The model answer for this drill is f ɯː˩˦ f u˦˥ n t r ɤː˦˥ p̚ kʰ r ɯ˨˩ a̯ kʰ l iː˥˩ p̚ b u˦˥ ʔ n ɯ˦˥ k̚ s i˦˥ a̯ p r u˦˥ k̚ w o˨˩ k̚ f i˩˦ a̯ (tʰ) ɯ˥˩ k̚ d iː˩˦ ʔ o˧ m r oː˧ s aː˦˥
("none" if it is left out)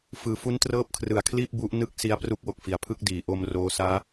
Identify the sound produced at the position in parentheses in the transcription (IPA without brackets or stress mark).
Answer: pʰ